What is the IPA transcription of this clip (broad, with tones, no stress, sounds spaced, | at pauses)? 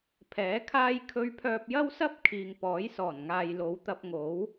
pʰ ɛː˨˥ kʰ aː˥ j kʰ ɵ˧ ɥ pʰ œː˧ p̚ j ɐ˥ w s ɐ˥ p̚ kʰ iː˨ ŋ p ɔː˨˥ j s ɔː˨˩ n ŋ aː˨ j l o˨˧ w t̪ ɐ˧ p̚ ŋ o˨˥ w